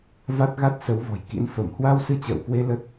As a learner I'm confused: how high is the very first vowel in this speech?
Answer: low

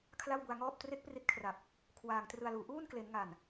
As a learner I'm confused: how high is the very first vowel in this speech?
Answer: low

